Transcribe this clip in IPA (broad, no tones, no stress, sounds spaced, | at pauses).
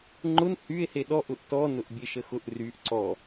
ŋ͡ǃ ʊ n h y e̯ h e ɗ ɔ ʔ ʊ ʔ t ɔ n ʊ ʔ bʲ e ʃ ə x ʊ ʔ r y ʔ ǀ ɔ